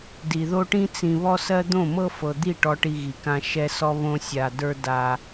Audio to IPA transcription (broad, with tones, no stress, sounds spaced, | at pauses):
d i˨ ð o˦ ʈ ĩ˦ t͡s ĩ˨ β ɔ˦ s ɜ˦ d̪ õ˦˨ m ɤ˦ f ɤ˨ d̪ i˦˨ ʈ ɔ˦ ʈ i˦ ɣ i˨ k ã˦ ʃ ɛ˦ s ɔ˦ β õ˦ sʲ a˨ d ə˞˦ d a˦